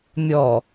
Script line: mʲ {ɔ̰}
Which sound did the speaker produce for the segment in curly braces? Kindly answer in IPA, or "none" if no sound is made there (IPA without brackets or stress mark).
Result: ɔ